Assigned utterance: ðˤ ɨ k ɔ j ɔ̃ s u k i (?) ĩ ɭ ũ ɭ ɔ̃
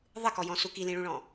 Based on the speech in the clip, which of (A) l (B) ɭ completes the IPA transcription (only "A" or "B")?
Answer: A